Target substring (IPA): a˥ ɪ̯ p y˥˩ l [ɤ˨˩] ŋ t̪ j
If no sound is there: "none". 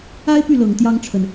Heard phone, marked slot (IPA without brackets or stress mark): ɤ˨˩